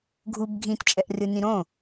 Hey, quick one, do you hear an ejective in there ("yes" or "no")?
yes